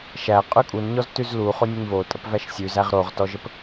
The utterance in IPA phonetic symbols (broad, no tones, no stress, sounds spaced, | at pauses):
ʃ æ qʼ ʉ kʼ u n ɲ ɔ z t ʉ z l u χ o nʲ ə ɲ v o tʼ ə p v æ ʃ sʲ ʉ z æ ʁ ɾ o ʁ t ɔ ʒ ə p